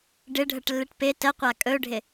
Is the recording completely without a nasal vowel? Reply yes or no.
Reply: yes